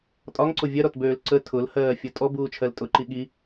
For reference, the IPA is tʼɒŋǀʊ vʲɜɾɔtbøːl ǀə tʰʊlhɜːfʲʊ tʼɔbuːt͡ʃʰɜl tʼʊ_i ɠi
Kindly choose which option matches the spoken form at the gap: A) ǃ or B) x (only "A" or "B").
A